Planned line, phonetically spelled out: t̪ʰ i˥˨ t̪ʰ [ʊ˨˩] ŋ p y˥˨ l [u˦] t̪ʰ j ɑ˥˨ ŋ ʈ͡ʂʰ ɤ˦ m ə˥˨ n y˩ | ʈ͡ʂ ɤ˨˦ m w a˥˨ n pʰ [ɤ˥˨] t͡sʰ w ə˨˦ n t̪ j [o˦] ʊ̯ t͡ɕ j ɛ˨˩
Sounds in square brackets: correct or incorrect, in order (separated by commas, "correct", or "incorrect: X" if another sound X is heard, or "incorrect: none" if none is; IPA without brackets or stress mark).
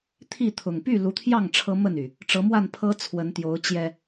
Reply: correct, incorrect: u˨˦, incorrect: ɤ˦, incorrect: o˨˦